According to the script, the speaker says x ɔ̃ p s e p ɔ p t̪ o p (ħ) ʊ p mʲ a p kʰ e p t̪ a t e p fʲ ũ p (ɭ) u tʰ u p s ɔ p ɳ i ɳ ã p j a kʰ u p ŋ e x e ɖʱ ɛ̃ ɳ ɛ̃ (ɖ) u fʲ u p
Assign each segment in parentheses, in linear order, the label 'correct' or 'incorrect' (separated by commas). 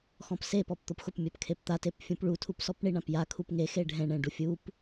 incorrect, correct, correct